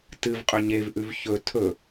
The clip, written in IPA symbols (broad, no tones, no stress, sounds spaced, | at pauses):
t ɨ v qʼ ɵ ɲ e v ʔ ʉ v ç ɵ tʰ ɵ